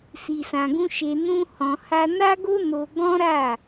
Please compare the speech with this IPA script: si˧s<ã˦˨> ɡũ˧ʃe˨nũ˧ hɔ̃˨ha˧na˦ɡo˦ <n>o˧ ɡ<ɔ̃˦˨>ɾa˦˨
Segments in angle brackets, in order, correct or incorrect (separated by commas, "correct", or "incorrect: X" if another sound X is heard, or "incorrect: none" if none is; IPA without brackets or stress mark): incorrect: ã˧, correct, incorrect: ɔ̃˦